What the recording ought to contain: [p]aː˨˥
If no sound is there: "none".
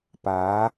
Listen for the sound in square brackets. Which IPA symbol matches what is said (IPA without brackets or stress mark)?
p